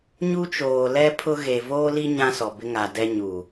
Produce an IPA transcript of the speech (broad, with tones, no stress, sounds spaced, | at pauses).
ɲ u˦ t͡ʃ oː˨ l ɛ˦ pʰ ʊ˦ ɣ e˨ v oː˦ l i˦ ɲ ã˦ s ɔ˨ b ɪ˦ ŋ a˨ d ɛ˦ ɲ u˨